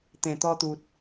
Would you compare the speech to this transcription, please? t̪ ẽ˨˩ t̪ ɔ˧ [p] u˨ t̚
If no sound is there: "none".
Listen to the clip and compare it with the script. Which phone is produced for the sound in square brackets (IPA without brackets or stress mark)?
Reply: t̪